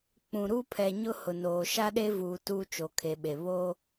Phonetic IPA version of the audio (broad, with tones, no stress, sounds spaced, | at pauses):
k͡p ũ˨ ɾ u˦ pʰ ɛ˨ ɲ ʊ˦ h ʊ˨ n oː˨ ʃ a˦ ɗ e˦ v uː˨ t uː˦ t͡ʃ o˨ kʰ e˨ ɓ e˨ β o˦